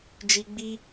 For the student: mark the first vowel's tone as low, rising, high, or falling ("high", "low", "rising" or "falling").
low